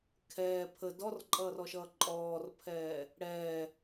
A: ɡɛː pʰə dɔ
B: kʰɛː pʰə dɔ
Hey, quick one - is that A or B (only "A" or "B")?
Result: B